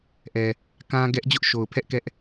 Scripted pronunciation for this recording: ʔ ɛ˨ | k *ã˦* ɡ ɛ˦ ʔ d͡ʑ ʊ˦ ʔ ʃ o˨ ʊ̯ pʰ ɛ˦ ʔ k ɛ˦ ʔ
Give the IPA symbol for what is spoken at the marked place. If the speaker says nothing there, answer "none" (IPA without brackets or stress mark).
ã˦